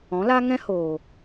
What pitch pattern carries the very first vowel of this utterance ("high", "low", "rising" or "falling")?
rising